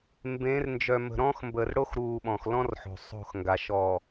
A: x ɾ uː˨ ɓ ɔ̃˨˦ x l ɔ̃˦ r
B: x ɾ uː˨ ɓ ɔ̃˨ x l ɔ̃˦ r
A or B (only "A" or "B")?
B